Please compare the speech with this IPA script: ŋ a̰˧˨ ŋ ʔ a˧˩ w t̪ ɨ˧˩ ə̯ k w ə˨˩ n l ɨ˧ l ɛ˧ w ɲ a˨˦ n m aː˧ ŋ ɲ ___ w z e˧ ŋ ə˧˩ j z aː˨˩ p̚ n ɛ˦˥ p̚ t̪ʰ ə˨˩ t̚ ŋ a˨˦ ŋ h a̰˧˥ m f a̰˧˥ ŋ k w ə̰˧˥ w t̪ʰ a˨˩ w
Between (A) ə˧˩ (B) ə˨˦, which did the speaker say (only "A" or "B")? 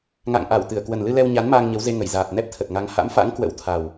B